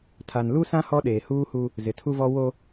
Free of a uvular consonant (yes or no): yes